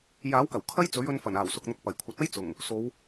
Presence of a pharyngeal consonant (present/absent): absent